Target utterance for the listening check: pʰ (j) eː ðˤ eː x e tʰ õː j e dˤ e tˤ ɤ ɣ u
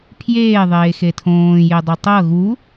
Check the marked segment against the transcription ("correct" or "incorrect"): correct